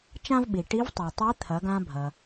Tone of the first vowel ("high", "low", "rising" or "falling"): high